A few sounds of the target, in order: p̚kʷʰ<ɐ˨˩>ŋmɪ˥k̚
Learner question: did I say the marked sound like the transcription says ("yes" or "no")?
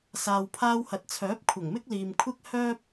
yes